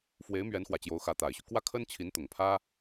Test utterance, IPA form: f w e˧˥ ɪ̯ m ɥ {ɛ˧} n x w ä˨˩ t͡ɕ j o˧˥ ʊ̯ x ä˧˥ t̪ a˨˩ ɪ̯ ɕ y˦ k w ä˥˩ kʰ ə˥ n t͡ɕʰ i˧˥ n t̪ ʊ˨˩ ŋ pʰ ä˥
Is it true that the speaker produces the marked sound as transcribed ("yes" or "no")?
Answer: no